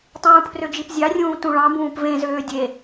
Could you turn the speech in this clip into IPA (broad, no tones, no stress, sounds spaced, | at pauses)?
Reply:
tˤ ũː pʰ r ø d͡ʒ i p zʲ ɑ rʲ ũː t ũ ɭ ɑ̃ b ũː p v ẽ z øː dʲ e